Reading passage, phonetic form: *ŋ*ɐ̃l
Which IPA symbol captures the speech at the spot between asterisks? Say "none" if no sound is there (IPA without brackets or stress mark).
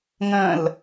ŋ